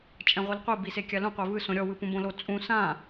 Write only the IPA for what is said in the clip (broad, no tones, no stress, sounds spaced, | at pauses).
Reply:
t͡ʃʼ ɛ̃ ʁʷ i l qʷ i b i s e kʲ a l ũ qʷ e v ɯ s õ ɾʲ ɔ w ɯ p ũ b õ l o t͡sʼ ũ s ã